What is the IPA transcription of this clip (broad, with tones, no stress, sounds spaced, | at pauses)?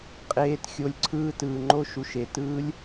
qʼ eː˧ t xʲ o˧ lʲ ǀʰ ɯː˦ t ɯː˨ ŋ͡ǃ o˦ ʃ u˨ ʃ e˨ t ɯː˦ lʲ